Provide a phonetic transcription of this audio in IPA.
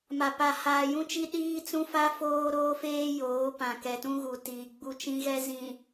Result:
m a˨ p a˨ h aː˨ j ũ˦ t͡ʃ i˦ ɗ iː˦ t͡s ũ˦ f a˦ f oː˦ ɾ oː˦ f eː˦ j oː˨˦ p ã˨ k ɛ˨ t ũ˦ ɣ u˨ t iː˨ ɡ͡b u˦ t͡ʃ ĩ˦ ɣ ɛ˦ z ĩ˨

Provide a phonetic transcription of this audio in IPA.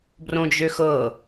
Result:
b r õ d͡ʒ ø x ɤ

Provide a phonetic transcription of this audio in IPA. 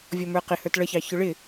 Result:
vʲ ɔ m ə˞ q ɪ h ə˞ t ɭ ʌ ç ɑ ç ʊ ɭ ɪ

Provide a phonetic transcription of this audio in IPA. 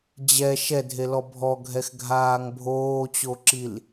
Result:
d͡ʑ ɛ ʃ ɛ dʱ e l ɔ bʱ ɔ ɡʱ ɛ x ɡʱ aː ŋ bʱ oː t͡ɕ o ǁ i l

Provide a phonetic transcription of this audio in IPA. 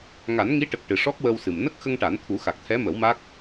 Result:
ŋ a˨˩˦ n ŋ i˧˥ ʈ ə˨˩ k̚ ʈ ɨ˨˩ ʂ ɔ˦˥ k̚ w ə˧ w s ɨ˨˩ m n ə˦˥ k̚ x ə˧ ŋ ʈ a˨˩˦ n t̪ʰ u˨˩˦ x a˨˩ k̚ t̪ʰ ɛ˧˥ m ə˨˩˦ w m a˦˥ k̚

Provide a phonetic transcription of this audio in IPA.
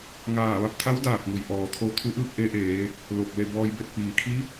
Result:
ŋ aː˧˩ ʋ a˧ p̚ t̪ʰ a˧˥ w d aː˧˩ t̚ ŋ u˩ j ʔ ɔː˩ t̪ʰ o˧ t̪ʰ u˧˥ ʔ ɯː˥˨ k̚ ʔ e˧˥ ʔ eː˩˧ | l o˧˩ k̚ l e˥˨ b ɔː˧ j b e˥˨ t̚ p iː˩ kʰ i˧˥

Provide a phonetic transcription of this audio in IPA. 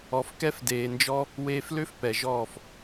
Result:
ɔ˨ f k ɛ˧ f d eː˨ n d͡ʒ ɔ˦ | w eː˧ f l ø˦ f p ɛ˨ ʒ ɔː˦˨ f

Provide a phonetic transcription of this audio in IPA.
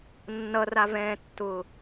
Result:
nː ʌ r a v ɛ̃ː tː ʊː

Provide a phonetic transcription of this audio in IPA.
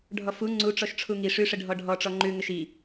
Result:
ɖʱ ɔ f u ŋ͡ǀ u ʈ͡ʂ ɔ ʃ ʈ͡ʂʰ u ŋ i ʂ ʉ ʂ ə ɖʱ ɔ ɖʱ ɔ ʈ͡ʂ ɔ ŋ͡ǃ ʉ ŋ ə ʃ i

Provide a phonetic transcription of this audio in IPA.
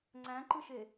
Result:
ŋ͡ǀ æ̃ ǃ ɯ ʃ e

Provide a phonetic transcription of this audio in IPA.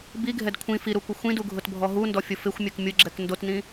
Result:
b i ɡʱ ɛ d kʷʰ ĩ f i ɾ u kʷ ɪ xʷ ĩ d u ɡʱ ʊ t bʱ ɔ ɦ u n d ɔ fʲ ʊ f ɪ xʷ mʲ œ k mʲ ʊ ɡ͡ǁ ɛ k n d o t n ĩ

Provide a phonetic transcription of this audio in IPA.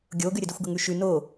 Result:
ɡʲ o ɡ ʉ ɾʲ ə d i xʷ ɡ ə ŋ ʉ ʃ ʉ n o

